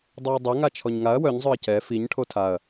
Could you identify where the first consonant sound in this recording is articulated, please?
alveolar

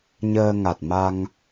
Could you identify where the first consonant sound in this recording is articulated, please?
palatal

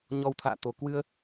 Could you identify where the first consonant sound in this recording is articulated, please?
palatal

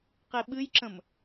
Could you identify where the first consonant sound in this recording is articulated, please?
uvular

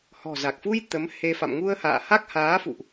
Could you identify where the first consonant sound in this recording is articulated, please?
glottal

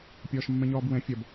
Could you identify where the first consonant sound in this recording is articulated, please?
labial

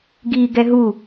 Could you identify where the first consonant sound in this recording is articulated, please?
velar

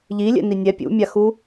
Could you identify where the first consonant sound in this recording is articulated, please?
palatal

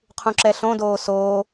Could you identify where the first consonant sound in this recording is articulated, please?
uvular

